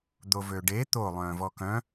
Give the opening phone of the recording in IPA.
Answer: d̪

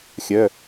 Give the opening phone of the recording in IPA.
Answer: xʲ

